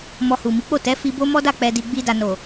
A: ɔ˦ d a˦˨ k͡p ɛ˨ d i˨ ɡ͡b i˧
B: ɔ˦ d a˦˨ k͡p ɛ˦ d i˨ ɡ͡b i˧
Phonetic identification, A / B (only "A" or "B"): A